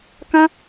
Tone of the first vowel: high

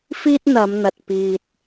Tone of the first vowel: high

